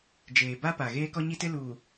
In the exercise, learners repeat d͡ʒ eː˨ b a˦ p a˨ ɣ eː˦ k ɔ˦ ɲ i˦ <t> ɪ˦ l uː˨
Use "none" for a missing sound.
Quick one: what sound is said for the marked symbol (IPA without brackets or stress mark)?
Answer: t